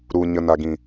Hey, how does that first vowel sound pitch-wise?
low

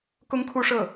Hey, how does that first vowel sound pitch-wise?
high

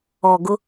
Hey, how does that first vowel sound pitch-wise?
low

